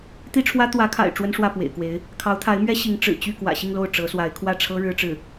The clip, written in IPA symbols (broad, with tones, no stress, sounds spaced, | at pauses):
t̪ i˥ ʈ͡ʂʰ w ä˥ t̪ w ä˧˥ kʰ a̰˨˩ ɪ̯ ʈ͡ʂ w ə˥ n ʂ w ä˥˩ p w ḛ˨˩ ɪ̯ k w e˧˥ ɪ̯ | kʰ ɑ˧˥ ʊ̯ t̪ʰ a˧˥ ɪ̯ m ɥ ɛ˥ ɕ i˧˥ ŋ ʈ͡ʂ ɻ̩˨˩ t͡ɕ y˥˩ k w ä̰˨˩ ɕ i˥˧ ŋ l o˥˩ ʊ̯ ʈ͡ʂ ɤ˧˥ s w a˧˥ ɪ̯ kʰ w ä˥˩ ʈ͡ʂʰ ɤ˥ ɻ ɻ̩˥ ʈ͡ʂ ɻ̩˥˩